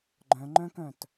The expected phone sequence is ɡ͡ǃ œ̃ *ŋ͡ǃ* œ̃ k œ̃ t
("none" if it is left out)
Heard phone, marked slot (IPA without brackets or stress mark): ŋ͡ǃ